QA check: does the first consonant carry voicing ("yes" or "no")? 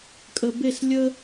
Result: no